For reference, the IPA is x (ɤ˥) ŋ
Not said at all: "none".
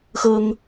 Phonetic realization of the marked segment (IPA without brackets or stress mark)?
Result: ɤ˥